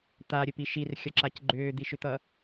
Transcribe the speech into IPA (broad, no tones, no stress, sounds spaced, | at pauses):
t̪ a ɾʲ ɘ p i ʃ i r xʲ ʌ ǁ a c ɡ͡ǃ ʏː d̪ i ʃ ʏ t̪ ʌ